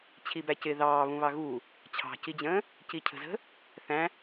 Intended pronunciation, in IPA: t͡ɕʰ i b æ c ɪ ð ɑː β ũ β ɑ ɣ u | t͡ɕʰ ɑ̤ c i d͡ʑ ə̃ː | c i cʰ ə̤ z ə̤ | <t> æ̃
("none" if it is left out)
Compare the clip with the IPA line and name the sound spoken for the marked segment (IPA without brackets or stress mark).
θ